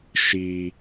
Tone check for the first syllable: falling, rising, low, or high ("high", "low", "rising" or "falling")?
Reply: high